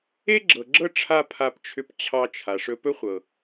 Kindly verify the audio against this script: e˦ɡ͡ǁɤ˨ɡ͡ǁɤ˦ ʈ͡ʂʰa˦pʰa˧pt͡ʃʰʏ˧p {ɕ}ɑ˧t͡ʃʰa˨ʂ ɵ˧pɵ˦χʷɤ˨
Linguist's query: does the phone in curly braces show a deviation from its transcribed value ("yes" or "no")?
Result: yes